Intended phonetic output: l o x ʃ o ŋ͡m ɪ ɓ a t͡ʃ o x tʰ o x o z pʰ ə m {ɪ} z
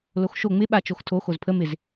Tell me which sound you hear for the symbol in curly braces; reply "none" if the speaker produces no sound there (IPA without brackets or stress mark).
ɪ